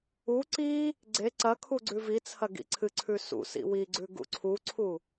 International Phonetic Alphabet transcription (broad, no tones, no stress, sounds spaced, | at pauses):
u ǀ i | ɡ͡ǀ e ǀ ɐ kʰ u ɡ͡ǀ ʉ v i t͡sʰ ɐ ɡ ḭ ǀʰ ɨ ǀʰ ʉ s ṵ s ḭ w i ɡ͡ǀ ʉ ɡ ṵ ǀʰ u ǀʰ u